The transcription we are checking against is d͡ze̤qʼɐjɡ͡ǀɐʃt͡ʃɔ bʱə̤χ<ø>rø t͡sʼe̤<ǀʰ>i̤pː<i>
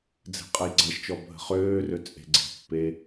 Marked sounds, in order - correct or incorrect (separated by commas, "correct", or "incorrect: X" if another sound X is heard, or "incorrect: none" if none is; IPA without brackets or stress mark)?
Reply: incorrect: øː, incorrect: ɡ͡ǀ, incorrect: e